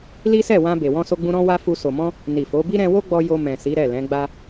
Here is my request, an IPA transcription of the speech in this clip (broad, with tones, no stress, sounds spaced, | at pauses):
l i˦ s ɛ˦˨ w ã˧ b e˨ w ɔ̃˧ s o˧ ɡ͡b ũ˧ ɾ ɔ̃˦ w a˦ f u˧ s o˨ m ɔ̃˧ | n i˨ f o˨˦ b i˦ ɾ ɛ̃˧ w o˦ ɡ͡b ɔ˧ j o˧ m ɛ̃˨ s i˨˦ ɾ ɛ˦˨ l ɛ̃˨˦ ɡ͡b a˧